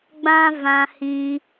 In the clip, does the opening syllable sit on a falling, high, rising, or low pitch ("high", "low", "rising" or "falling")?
high